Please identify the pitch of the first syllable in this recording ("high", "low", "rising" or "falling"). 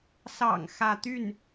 low